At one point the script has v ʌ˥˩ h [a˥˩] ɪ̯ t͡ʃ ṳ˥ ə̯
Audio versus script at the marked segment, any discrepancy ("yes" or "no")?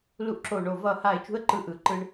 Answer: no